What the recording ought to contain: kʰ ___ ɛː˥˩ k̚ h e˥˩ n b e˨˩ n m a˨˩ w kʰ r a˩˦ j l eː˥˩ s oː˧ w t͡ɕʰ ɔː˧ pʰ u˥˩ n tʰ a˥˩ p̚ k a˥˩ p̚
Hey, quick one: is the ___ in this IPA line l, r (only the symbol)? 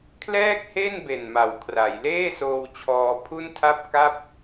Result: l